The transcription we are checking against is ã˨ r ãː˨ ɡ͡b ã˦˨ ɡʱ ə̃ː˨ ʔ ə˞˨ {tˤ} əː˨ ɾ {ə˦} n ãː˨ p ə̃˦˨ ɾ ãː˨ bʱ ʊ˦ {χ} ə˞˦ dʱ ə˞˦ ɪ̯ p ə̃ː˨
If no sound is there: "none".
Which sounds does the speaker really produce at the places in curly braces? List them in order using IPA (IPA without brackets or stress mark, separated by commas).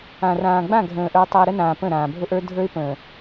tˤ, ə˦, ʔ